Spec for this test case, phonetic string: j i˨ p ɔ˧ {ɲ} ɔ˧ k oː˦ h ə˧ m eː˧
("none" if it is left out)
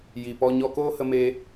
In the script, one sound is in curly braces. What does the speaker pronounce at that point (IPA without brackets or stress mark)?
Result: ɲ